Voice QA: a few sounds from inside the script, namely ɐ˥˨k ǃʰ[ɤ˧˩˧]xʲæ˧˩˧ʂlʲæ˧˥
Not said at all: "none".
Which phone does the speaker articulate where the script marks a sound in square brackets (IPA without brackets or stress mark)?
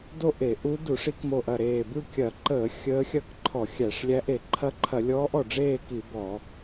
ɔ˧˩˧